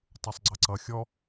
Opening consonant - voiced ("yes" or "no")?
no